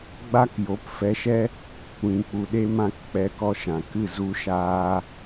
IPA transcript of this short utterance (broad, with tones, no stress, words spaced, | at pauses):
ɡ͡ba˦kjo˨˦pfɛ˧ʃɛ˦ | kʷĩ˨k͡pu˨ ɗe˦mã˦k k͡pɛ˧kɔ˧ʃã˨kɨ˦˨ zu˦ʃaː˦